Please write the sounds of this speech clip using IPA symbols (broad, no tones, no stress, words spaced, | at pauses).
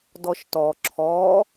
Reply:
dɔʃtɔ ǁʰɔ